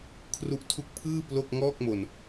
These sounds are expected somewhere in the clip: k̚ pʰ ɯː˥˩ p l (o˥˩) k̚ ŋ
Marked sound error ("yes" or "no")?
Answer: no